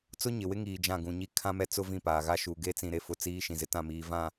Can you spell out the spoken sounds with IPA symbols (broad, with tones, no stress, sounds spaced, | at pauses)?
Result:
t͡s ʊ˦ ɲ ɪ˨ w ɪ˦ ŋ iː˨ d͡ʒ ã˦˨ ɡ ũ˨ ɲ i˦ kʰ ã˦ m ɛ˦ t͡s ʊ˦ v ĩ˦˨ p aː˨ ɣ a˦ ʃ uː˨ ɡ e˦ t͡s ĩ˨ ɾ e˨ f ʊ˨ t͡s iː˨˦ ʃ ĩ˨ z ɪ˦ t ã˦˨ m iː˨ v ã˨